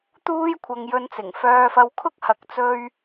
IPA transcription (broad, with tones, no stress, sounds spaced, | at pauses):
t̪ uː˥ j kʷʰ ɐ˧ ŋ j ɵ˧ n t͡s ɪ˨˩ ŋ f œː˧ f ɐ˧ w kʰ ʊ˥ k̚ h ɐ˨ k̚ t͡s ɵ˧ ɥ